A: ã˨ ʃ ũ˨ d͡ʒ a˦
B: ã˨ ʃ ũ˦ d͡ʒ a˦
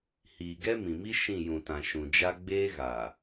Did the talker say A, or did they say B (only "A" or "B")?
A